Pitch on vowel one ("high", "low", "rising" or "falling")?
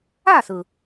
falling